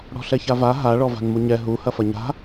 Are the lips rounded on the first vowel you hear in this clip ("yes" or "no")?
yes